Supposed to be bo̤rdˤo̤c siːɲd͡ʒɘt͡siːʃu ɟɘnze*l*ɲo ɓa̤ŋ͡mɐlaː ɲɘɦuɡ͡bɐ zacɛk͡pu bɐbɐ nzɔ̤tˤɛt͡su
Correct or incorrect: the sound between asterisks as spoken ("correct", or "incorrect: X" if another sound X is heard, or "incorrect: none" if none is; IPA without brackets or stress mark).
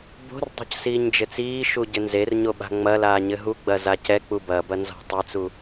incorrect: r